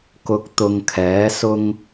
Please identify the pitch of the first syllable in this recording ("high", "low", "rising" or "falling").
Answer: low